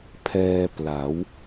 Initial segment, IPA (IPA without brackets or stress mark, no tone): pʰ